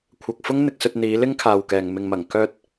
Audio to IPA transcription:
kʷʰ ɐ˨ k̚ f ʊ˥ ŋ n̪ ɪ˧ k̚ s ɵ˧ t̚ n̪ iː˨˧ l ɪ˥ ŋ kʰ aː˨ w k ɛː˨ ŋ m ɪ˨ ŋ m ɐ˨˩ ŋ k œː˧ t̚

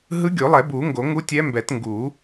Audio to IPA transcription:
ɦ ɯ˧˥ ɡʲ o˨˩˦ lˠ ɛ˨˩˦ b u˨˩˦ ŋ ɡ o˨˩˦ ŋ u˧˥ tʲ ɛ˧˥ m b ɛ˨˩˦ t ŋ ɡ u˨˩˦

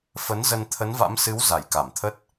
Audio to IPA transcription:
f ə˨˦ n z ə˧ n t̪ʰ ə˨˦ n v a̰˧˥ m s ɨ˨˦ w z a˧˩ j k a˧˩ m t̪ʰ ə˦˥ t̚

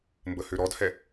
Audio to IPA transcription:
m b ə h ø ɾ ɔ d h ɛ

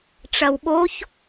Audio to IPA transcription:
ʈ͡ʂ ɐ w ɓ o ç

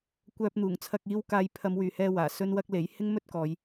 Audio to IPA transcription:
kʷ œː˧ p̚ n̪ uː˨˩ ŋ t͡sʰ ɐ˧ k̚ iː˧ w k aː˧ j pʰ ɐ˨˧ m w yː˨ h ɛː˧ w aː˨˩ s ɵ˥ n w ɐ˥ k̚ l e˨˥ j h ɪ˥ ŋ m ɵ˥ t̚ k ɔː˨˧ j

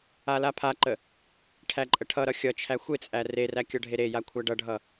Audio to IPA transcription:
a l a pʰ a ǃ ə | ʈʰ æ ǃʼ ə ʈʰ ʌ ɾ ʌ xʲ ʌ t͡ʃʰ æ xʷ e t͡sʼ æ r e r æ kʲ ʌ ɖʱ e ɾ e j a kʷʰ æ ɖ ʌ ɖʱ ʌ

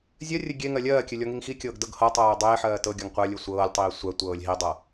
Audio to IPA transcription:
zʲ ɜ rʲ ɘ ɡʲ e ŋ ɜ lʲ ɜː kʲ ɘ lʲ ɔ ŋ i ŋ x i kʲ ɤː ɡ d ɤ ɡ h ɤ tˤ ɜː dˤ eː ħ ɜː t ɤ ɡʲ ɔ ŋ qʷ ɜ lʲ ɘ sʷ ɤː lʲ tˤ iː sʷ ɜ tʷ ɤː lʲ ɦ i dˤ ɤ

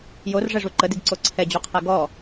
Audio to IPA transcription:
j o r ʐ ɛ ʐ u ǃ ə d i ɡ ǀ o ǀʰ ɛ d͡ʑ u qʰ ɛ ɡ ɔ

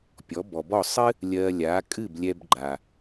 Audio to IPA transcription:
pʲ ɔ˩˥ b ɔ˩ b ɔ˥˩ sˤ ɨ˥ | lʲ ɜ˧ lʲ a˩˥ kʼ ɨ˥˩ b lʲ ɛ˧ b ɡ͡ǃ a˩

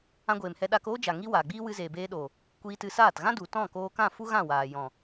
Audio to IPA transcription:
ã˧ ɡʷ eː˨ m h ɛ˧ ɗ aː˧ k oː˦ d͡ʒ a˨ ŋ i˦ w aː˨ ɡ͡b iː˦ w ɨ˧ z eː˨ b eː˧ ɗ oː˨ | kʷ iː˧ t ɨ˧ s aː˦˨ t ɣ ã˦ d u˨ t ɔ̃˦˨ k oː˧ k ã˦˨ f u˦ ɣ ã˦˨ w aː˨ j ɔ̃˨

